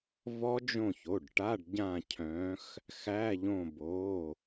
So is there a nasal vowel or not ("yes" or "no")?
yes